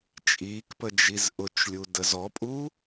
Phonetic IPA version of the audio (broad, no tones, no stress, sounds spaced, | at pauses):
t͡ʃʼ iː k p ə d͡ʒ i z ʔ ʊ t͡ʃ lʲ u d ə z ɔ pʼ uː